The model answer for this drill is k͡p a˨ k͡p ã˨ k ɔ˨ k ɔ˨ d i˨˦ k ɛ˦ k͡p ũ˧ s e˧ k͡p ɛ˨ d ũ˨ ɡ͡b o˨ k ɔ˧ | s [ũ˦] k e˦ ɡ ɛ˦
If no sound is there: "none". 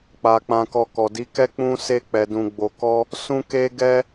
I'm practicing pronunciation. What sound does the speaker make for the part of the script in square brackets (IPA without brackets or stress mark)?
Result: ũ˦